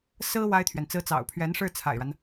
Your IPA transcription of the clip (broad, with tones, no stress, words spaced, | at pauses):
sɹ̩˥ wa˥ɪ̯t̪ʰɥɛ˨nt͡sɹ̩˥ t͡sɑ̰˨˩ʊ̯pʰɥɛ˧˥nʂɻ̩˥˩ t͡sʰa̰˨˩ɪ̯ɻa˦n